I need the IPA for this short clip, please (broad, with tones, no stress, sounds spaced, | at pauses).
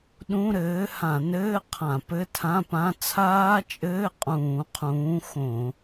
ɗ ũ˧˥˧ ɾ ɘː˨˥ h ã˧˩˧ n ɘː˧˥˧ qʰ ã˧˩˧ p ɘ˧˥˧ tʰ ã˧˥˧ p ã˧˥˧ t͡sʰ aː˦˥ t͡ʃʼ ɘː˧˥˧ qʼ ũː˧˩˧ qʰ ũː˨˥ x õ˧˩˧